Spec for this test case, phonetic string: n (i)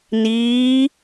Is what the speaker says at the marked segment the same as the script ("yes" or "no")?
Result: no